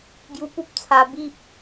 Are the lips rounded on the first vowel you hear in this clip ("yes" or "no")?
yes